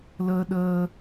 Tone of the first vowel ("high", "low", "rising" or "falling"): high